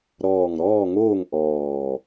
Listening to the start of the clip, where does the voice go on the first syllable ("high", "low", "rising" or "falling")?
low